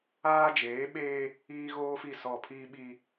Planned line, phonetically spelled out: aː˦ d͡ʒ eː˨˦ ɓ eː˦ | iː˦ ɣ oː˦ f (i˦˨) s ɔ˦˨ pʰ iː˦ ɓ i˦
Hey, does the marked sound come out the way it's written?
yes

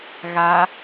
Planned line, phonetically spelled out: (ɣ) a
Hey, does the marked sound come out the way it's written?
yes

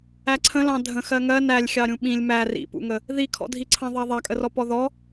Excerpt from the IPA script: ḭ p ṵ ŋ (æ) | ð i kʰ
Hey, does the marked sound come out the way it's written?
no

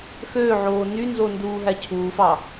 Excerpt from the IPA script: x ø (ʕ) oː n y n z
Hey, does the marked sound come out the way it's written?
yes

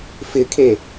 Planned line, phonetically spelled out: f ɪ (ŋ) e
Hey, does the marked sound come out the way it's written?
no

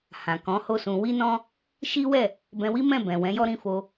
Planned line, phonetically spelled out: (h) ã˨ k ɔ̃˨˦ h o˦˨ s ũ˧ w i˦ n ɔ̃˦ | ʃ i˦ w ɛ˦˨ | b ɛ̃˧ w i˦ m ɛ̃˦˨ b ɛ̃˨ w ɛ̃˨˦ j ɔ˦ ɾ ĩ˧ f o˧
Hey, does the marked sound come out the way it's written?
yes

